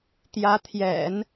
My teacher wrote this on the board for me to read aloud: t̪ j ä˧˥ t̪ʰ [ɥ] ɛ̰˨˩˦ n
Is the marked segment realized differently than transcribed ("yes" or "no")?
yes